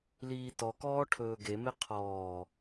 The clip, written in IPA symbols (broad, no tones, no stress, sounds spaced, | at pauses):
l iː t ɔ k ɔː ʈʰ ɵː ɡ e m e qʰ ɔː